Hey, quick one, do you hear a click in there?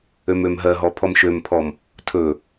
no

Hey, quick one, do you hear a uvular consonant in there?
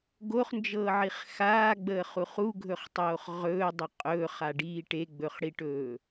yes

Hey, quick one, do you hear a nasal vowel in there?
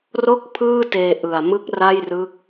no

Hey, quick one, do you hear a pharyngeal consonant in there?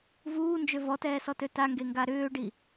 no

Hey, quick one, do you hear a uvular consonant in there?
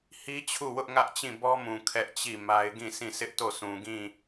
no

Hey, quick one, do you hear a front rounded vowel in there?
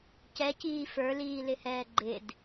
no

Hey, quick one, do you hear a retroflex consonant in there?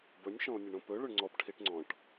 yes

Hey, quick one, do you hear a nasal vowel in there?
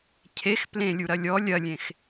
yes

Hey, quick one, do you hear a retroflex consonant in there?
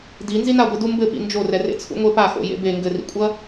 no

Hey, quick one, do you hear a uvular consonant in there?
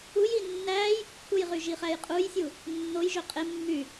yes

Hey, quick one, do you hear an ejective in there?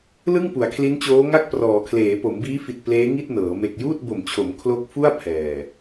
no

